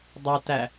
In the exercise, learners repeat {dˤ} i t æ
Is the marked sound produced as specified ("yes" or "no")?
yes